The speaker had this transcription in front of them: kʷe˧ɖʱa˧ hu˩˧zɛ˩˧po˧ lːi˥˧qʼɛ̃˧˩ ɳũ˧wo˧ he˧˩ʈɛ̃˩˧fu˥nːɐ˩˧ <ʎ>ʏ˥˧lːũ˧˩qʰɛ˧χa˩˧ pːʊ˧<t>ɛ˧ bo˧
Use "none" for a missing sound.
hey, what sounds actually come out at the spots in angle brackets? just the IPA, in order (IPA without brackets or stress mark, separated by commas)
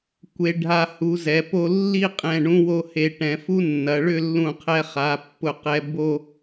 ɭ, q